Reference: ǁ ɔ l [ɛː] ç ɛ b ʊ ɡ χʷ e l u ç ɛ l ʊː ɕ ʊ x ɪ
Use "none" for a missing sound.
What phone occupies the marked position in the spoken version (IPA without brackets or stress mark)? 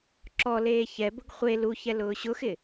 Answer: eː